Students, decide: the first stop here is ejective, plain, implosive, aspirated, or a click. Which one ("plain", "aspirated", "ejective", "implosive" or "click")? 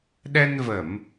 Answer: implosive